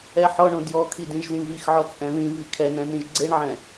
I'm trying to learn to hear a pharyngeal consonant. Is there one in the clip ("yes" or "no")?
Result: yes